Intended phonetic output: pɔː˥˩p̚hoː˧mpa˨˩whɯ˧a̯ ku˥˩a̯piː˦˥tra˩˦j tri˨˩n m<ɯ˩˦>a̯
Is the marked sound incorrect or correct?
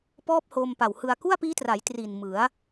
correct